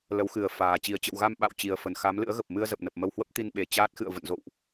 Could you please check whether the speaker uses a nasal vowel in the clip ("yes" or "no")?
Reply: no